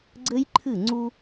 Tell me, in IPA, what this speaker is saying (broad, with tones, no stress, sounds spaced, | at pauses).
ɡ͡ǀ ɘ˦ j ǃʰ ɨ˦˨ ŋ͡ǀ u˦